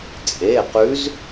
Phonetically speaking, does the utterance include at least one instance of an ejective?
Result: yes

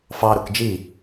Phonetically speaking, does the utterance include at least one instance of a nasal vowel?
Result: no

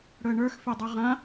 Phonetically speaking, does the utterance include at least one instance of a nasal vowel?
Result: yes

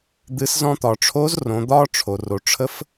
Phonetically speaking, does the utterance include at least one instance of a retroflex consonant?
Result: yes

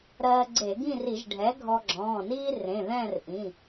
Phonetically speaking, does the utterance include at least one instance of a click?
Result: yes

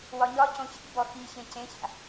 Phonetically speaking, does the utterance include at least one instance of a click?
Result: no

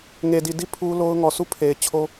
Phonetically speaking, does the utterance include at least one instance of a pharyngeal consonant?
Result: no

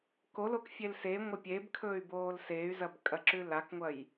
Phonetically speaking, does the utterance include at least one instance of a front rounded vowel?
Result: yes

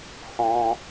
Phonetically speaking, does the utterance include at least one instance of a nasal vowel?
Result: yes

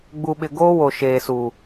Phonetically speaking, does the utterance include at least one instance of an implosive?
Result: yes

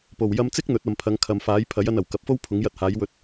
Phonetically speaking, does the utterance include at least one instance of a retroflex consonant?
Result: no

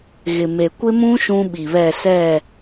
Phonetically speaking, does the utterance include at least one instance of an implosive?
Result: yes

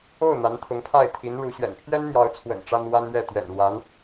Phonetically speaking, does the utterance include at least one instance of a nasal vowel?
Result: no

